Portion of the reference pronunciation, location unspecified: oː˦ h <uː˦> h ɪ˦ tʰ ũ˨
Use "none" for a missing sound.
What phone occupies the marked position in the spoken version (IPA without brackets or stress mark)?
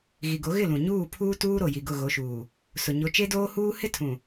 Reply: uː˦